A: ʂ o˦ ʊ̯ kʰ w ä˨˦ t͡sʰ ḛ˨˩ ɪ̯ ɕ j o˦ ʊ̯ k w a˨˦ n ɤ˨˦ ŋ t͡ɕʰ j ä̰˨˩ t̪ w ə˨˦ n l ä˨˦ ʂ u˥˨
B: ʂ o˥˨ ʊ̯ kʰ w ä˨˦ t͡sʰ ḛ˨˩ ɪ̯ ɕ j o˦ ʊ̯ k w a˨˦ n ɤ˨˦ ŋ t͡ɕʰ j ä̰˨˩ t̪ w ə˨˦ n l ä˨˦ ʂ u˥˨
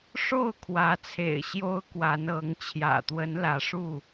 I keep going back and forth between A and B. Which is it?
B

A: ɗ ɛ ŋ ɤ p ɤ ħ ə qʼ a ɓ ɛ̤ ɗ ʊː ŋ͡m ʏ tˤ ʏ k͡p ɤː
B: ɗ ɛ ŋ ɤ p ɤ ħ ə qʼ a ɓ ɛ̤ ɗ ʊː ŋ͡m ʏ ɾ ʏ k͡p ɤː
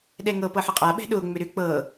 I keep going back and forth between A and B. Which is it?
B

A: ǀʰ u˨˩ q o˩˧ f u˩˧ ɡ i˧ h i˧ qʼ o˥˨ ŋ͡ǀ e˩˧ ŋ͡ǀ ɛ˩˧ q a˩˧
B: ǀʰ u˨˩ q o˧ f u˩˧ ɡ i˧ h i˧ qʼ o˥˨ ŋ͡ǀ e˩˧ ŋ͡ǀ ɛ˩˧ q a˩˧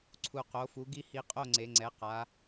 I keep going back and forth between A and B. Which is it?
A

